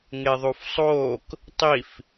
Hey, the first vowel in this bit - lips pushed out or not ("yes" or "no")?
no